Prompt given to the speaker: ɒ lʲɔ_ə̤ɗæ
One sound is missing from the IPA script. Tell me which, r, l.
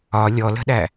l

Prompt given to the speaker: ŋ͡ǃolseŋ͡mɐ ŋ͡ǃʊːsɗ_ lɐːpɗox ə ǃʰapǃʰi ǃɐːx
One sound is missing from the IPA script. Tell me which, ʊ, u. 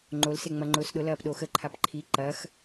ʊ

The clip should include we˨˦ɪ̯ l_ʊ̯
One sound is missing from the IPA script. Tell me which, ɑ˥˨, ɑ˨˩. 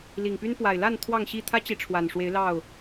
ɑ˥˨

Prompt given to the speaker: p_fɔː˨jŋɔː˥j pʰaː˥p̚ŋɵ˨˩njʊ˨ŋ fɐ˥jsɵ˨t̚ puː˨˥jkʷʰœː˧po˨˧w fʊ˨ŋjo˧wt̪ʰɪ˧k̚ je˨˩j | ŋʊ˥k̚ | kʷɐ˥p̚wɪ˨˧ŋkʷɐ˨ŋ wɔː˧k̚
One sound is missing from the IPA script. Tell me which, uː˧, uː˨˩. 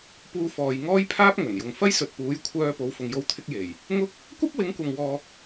uː˧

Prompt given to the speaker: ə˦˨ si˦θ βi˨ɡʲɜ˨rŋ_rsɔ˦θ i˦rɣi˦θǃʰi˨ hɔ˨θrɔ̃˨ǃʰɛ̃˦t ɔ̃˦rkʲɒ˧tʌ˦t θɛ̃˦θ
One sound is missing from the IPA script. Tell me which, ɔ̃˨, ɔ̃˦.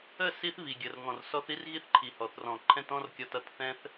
ɔ̃˨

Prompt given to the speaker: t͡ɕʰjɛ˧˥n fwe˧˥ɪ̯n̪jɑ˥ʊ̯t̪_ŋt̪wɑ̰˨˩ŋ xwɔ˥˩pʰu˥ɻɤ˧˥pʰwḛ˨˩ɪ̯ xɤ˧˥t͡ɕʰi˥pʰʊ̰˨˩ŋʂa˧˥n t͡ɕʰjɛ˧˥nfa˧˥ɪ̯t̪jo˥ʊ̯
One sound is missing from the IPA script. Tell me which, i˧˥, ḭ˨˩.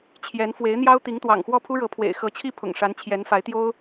i˧˥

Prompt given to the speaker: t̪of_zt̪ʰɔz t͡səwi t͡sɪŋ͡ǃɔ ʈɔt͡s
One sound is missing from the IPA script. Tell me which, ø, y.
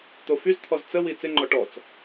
y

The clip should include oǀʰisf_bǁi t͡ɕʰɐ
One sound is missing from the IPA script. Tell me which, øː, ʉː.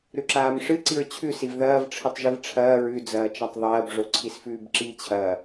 ʉː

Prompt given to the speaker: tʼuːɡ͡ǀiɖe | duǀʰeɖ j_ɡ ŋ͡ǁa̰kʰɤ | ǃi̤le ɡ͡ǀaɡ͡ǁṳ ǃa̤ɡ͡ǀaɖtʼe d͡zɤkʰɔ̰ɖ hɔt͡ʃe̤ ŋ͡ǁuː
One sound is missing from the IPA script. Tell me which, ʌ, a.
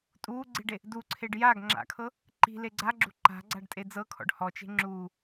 a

